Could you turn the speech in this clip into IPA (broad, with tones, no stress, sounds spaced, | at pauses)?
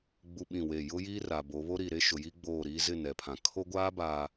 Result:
ɡ͡b u˦ ɓ ĩ˦˨ w e˦˨ j ʊ˦ j i˦ r a˨ b o˨˦ β o˦ ɾ i˨ ɾ e˦ ʃ ʊ˨ j i˦ ɡ͡b oː˦˨ ɾ iː˦ z ɪ˦˨ n ɛ˨ pʰ ã˨ kʰ o˦ ɡʷ aː˦ b aː˨